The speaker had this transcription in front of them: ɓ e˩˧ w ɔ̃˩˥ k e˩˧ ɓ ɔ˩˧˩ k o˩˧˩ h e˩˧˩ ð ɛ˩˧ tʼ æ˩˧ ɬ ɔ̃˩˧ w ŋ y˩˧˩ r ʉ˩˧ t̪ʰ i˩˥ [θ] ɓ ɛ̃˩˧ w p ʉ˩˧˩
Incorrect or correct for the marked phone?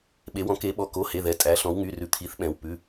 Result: correct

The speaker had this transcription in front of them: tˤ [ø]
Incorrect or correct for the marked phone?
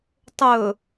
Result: incorrect: ɵ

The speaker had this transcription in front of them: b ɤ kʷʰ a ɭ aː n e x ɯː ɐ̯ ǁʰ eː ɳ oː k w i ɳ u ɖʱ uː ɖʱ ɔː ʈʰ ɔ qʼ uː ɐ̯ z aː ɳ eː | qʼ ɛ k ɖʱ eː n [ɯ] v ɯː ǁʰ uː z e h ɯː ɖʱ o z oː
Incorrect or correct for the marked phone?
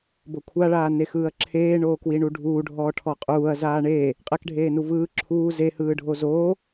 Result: incorrect: u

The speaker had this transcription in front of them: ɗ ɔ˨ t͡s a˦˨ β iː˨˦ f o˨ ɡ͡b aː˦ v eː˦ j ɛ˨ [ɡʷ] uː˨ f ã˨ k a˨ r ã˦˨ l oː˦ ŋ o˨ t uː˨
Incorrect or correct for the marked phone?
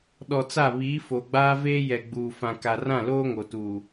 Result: incorrect: ɡ͡b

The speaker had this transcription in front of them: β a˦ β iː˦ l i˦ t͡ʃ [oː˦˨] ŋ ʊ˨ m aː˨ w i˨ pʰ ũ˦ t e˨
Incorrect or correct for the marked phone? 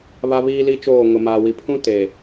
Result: correct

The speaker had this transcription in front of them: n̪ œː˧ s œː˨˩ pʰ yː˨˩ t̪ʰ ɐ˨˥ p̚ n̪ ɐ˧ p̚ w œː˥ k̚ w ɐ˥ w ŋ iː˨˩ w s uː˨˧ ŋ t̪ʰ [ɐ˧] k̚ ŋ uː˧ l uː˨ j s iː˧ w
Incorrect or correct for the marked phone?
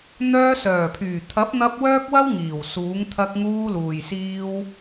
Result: correct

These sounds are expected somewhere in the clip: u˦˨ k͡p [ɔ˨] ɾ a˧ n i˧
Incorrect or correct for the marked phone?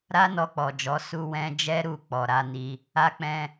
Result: correct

